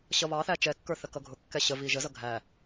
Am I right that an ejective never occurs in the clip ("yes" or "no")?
yes